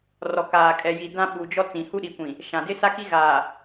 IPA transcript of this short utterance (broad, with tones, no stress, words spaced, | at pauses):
rɔ˨kaː˨ kʼɛ˨ji˨ dã˦ɓu˨d͡ʒɔ˦ t͡sĩ˨hu˦ɗi˨kʷĩ˨ | ʃã˨dɪ˦sa˦ki˦ ɣaː˨